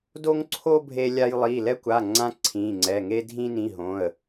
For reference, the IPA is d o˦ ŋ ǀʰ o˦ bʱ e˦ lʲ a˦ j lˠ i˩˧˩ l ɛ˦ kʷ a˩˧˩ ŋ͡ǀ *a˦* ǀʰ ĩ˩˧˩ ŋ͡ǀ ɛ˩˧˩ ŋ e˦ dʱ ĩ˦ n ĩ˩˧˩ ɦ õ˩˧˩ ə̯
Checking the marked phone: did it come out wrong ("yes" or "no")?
yes